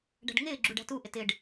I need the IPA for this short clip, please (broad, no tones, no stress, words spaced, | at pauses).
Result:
ɖæ̤ɖŋɪːɡ͡ǁuɖ æ̤tuʔɪt ɪɖ